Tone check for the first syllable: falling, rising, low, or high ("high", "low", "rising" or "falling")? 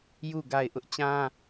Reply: falling